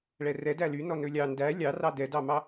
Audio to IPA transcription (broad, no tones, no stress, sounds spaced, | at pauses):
ɭ ɛ r ɛ d æ l y n ɔ n ɵ lʲ ɑ n d æ lʲ ɑ r ɑ d ɛ d ɑ m ɑ